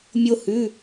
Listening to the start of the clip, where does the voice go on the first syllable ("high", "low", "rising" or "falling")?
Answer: high